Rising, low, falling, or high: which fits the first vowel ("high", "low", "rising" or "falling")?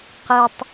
high